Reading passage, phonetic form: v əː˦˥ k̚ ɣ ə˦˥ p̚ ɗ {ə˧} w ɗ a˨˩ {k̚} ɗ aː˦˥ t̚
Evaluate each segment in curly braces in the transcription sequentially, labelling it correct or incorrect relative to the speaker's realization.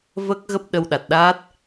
correct, incorrect: t̚

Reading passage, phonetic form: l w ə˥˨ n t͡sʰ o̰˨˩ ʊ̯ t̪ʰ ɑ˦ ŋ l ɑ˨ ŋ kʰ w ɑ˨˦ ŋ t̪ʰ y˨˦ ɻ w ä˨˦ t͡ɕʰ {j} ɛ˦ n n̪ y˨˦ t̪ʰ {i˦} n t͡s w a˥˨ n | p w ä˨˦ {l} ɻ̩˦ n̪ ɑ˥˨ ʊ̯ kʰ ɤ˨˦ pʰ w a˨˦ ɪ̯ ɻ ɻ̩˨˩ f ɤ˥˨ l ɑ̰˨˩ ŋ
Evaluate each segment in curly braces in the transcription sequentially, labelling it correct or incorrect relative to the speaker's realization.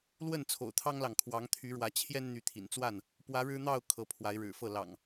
correct, incorrect: ḭ˨˩, incorrect: ɻ

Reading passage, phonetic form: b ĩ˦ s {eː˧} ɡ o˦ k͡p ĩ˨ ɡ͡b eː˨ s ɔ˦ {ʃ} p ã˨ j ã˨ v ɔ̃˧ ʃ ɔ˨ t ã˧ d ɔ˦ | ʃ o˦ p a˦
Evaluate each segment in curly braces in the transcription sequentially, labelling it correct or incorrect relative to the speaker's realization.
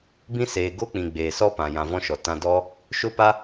incorrect: eː˨, incorrect: none

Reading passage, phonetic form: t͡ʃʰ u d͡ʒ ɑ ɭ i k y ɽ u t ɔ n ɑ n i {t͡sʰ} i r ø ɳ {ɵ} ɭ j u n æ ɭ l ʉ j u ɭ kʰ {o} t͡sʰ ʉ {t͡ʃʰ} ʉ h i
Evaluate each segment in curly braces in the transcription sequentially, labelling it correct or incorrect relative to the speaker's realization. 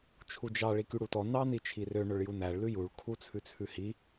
incorrect: t͡ʃʰ, correct, incorrect: u, incorrect: t͡sʰ

